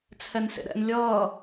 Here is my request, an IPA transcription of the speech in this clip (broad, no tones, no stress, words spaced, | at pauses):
t͡sʰɛnsḛɾɛ̰n lʲʌː